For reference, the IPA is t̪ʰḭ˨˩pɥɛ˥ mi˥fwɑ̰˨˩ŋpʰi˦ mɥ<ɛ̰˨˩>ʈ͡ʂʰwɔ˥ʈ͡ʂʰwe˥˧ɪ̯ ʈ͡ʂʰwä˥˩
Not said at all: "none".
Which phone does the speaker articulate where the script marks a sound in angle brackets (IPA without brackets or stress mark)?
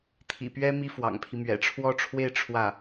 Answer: ɛ̰˨˩